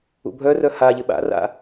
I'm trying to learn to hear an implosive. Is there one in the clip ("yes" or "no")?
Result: yes